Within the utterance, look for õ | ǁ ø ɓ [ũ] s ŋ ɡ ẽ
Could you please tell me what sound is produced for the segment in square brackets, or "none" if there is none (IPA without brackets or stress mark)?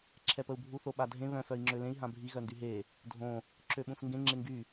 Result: ũ